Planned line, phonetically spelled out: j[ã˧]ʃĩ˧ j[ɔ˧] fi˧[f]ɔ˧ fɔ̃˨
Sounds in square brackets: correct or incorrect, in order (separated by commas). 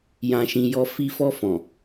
correct, correct, correct